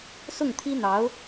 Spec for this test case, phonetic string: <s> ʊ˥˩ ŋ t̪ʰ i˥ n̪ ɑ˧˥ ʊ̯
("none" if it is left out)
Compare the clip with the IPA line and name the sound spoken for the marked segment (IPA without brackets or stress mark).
s